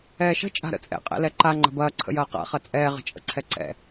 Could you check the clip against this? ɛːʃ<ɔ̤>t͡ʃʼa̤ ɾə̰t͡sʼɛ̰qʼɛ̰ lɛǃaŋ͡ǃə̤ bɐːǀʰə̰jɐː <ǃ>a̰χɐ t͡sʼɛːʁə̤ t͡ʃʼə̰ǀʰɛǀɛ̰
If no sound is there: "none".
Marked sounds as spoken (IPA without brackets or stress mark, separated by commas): ə̤, q